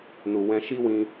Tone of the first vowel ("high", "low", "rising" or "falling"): low